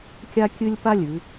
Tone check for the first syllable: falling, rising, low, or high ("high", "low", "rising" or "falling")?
high